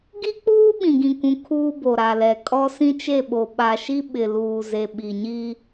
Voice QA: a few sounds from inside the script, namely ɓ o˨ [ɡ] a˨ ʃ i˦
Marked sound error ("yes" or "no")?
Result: yes